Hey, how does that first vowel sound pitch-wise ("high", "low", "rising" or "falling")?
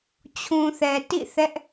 low